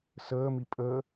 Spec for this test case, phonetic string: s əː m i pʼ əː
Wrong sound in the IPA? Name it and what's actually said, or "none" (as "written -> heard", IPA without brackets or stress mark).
none